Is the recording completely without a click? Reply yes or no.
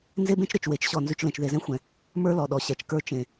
yes